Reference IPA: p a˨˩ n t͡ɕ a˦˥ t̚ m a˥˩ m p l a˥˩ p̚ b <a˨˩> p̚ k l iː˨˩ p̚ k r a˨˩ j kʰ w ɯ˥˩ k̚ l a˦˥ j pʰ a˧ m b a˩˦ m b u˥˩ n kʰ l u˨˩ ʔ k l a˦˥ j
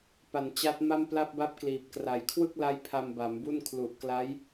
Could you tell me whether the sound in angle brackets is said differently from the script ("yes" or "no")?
yes